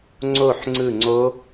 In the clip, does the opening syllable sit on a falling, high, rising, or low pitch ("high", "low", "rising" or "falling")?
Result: falling